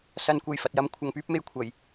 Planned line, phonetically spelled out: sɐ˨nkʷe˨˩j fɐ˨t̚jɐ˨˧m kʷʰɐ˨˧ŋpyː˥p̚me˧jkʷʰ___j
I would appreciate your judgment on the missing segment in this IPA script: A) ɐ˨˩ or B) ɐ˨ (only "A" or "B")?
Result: A